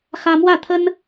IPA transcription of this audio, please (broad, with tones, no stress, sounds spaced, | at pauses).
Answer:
x ä˥ m w ä˥˩ t̪ʰ ə˥ n